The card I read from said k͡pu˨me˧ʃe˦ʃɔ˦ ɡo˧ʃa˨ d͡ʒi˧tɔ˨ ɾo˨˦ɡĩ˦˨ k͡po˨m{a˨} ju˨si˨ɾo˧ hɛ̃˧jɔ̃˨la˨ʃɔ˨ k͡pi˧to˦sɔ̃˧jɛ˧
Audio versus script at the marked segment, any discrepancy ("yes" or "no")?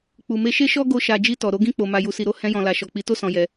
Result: no